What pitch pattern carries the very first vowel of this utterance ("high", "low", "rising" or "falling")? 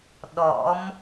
rising